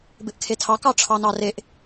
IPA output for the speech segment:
bɪʔkʰetʰɑ kɑʈ͡ʂʰɑnɑreʔ

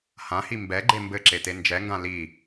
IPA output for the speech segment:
hãhi mbɛɡ͡ǃe mbɘǁete nd͡ʒɛŋɡã li

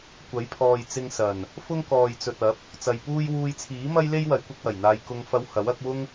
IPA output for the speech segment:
kʷɐ˨˥jpʰɔː˨j t͡sɪ˧ŋsɐ˨˩n | fʊ˥ŋkɔː˨jt͡sɵ˨t̚ ɐ˨˥p̚ | t͡sɐ˨jpuː˥j wuː˧jt͡sʰiː˨˥mɐ˥j le˥jwɐ˨˥j kʷɪ˨˥k̚wɐ˨˩jn̪aː˧j kʊ˧ŋfɐ˧w hɐ˨˥wɐ˨˥k̚ wʊ˥ŋ

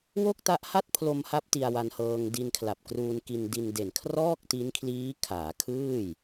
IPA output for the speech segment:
wo˥˩k̚ta˦˥ʔha˥˩t̚ pʰlo˧mha˦˥p̚ ti˧a̯wa˧nhɤː˧ŋ di˧nkʰla˨˩p̚kruː˧nki˧n di˧nde˨˩n kʰrɔː˥˩k̚ti˦˥nkʰliː˦˥ kʰaː˩˦kʰɯː˥˩j

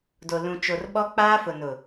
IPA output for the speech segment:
do˨lũ˨t͡ʃo˨rɓɔ˦ k͡paː˦fʊ˨nʊ˨

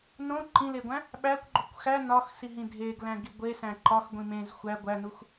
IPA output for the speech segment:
nõ ǃĩleɡʷæ̃ | ɓækʷɡ͡ǃokʷ xæ nɒxsiɦĩ dʱeɡlæ̃ɡi ɡʷesæ̃ ǃɒxɡʷĩ mẽz xʷæ ɡʷænux

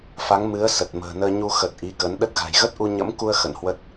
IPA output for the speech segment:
fa˨˦ŋmɨ˨˦ə̯ sə˨˩t̚mə̤ː˨˩nəː˧ ɲu˧xə˨˩t̚ ʔi˨˦kə˨˦n ɗə˦˥t̚ɣa̤˨˩j ɣə˦˥t̚ʔu˧ ɲə̰˧˥mku˧ə̯ xə̰˧˨nhwə˦˥t̚

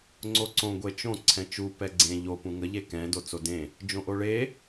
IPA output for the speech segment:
ŋ͡ǀoǀõ ɡʷet͡ʃõ ǀʰɛ̃t͡ʃu pɛɡ͡ǀẽ ʎo pũŋə ʎekɛ̃ dot͡sodẽ | d͡ʒõʔoɭe

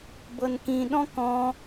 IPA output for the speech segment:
bɤnkĩɗɔ̃ kɔ̃

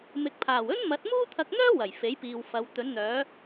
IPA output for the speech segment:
mɪ˨k̚pʰaː˨˩w ɵ˥nmɐ˨˥t̚ muː˥t̪ʰɐ˧k̚n̪œː˥ wɐ˨˩jfe˨˥jpiː˨wfɐ˨˧w t̪ɵ˨˧nn̪œː˨˧

